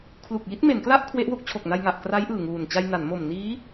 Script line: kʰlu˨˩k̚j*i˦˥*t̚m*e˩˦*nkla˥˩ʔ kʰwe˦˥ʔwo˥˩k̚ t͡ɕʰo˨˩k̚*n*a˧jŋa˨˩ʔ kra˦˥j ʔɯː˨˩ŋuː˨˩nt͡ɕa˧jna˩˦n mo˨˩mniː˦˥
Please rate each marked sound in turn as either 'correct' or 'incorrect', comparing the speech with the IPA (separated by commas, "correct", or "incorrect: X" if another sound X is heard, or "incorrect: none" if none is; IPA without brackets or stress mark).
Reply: correct, correct, correct